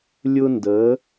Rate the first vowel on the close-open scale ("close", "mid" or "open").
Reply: close